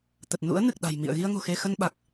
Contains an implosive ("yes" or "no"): yes